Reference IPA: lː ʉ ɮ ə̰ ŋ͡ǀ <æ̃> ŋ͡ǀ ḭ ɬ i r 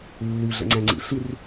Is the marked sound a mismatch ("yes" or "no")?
no